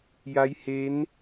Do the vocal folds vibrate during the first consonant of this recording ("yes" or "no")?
yes